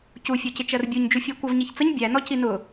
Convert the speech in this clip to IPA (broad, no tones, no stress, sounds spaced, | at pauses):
c u fʲ ɔ c ɪ t͡ʃ ɜ r bʲ u ɲ d͡ʒ u fʲ æ kʷ ɜ v ɲ i ç t͡s ə ɲ bʲ æ n ɔ c i n ʊ